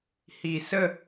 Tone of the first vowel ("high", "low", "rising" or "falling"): low